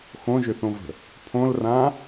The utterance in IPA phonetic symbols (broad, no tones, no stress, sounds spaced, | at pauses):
x õ ʒ ʏ θ õ v ə̤ | pʰ õ l r ã